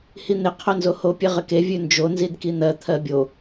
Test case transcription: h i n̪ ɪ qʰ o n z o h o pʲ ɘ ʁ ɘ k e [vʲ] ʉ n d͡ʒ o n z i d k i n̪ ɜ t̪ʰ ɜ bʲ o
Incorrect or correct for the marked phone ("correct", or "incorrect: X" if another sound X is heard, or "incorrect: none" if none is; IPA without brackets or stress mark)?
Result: correct